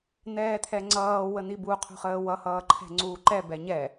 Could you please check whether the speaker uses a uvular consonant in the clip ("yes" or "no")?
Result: yes